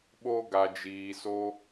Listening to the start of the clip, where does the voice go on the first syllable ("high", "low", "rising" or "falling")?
high